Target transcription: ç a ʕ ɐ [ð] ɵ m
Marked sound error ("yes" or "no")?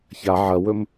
yes